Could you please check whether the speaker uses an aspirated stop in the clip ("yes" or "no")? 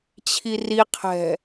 yes